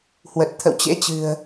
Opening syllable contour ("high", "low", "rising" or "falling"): low